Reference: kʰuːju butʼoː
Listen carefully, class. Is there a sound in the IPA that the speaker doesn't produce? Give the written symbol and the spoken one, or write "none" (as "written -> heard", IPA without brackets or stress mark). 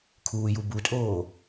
none